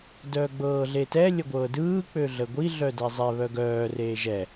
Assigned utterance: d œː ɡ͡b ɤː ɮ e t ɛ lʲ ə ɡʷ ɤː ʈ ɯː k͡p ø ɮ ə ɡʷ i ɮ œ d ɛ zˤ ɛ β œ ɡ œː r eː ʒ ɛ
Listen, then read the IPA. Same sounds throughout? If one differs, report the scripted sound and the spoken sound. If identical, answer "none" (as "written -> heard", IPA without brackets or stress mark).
ʈ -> d